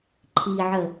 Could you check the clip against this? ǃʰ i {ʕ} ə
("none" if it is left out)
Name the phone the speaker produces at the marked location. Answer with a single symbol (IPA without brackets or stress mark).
ʕ